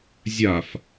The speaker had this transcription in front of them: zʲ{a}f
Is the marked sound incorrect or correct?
correct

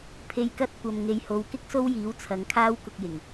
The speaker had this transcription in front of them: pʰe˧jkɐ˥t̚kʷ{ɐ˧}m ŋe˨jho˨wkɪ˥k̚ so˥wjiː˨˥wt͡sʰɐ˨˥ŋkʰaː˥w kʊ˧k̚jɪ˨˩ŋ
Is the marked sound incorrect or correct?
incorrect: ɐ˨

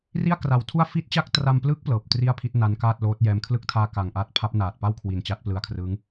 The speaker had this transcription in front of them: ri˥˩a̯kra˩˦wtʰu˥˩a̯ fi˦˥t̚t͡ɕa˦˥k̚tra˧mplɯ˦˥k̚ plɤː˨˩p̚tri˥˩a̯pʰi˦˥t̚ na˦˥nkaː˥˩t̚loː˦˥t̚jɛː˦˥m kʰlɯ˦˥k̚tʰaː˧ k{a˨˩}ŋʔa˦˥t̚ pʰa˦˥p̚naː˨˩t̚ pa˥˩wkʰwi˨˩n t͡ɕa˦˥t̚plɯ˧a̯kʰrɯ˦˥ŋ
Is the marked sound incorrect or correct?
correct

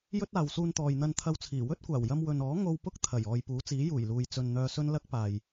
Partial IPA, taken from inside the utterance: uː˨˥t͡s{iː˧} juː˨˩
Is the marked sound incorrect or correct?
incorrect: iː˨˥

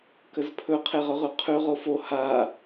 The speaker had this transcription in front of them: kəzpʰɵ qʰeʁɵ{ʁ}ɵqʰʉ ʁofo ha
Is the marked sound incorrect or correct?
correct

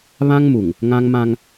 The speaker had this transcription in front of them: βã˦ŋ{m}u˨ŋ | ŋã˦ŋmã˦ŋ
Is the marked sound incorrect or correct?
correct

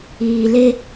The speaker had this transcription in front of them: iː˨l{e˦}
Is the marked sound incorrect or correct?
correct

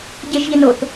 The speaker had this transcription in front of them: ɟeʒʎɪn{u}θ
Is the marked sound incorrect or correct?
incorrect: o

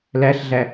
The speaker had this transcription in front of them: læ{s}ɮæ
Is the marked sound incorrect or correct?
incorrect: ɬ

